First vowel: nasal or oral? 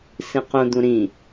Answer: nasal